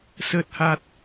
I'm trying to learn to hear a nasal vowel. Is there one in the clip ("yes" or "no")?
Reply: no